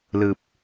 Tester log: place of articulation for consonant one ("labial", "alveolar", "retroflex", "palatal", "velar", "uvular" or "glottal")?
alveolar